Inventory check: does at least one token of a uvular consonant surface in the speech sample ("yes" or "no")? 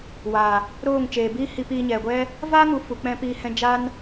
no